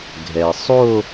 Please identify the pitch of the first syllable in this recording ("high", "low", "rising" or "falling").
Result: low